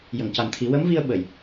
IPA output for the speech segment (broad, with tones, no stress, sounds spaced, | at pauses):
j ə˨˩˨ ŋ c a˨˩ n t̪ʰ i˨˩˦ w ə˧˥ m v i˧ ə̯ ɓ ə˨˩˨ j